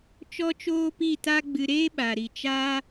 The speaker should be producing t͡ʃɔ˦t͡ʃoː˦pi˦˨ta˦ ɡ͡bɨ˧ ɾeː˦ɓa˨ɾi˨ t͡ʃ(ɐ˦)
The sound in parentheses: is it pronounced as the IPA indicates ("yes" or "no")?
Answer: no